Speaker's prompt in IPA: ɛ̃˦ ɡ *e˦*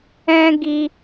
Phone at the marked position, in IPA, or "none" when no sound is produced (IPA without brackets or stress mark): i˦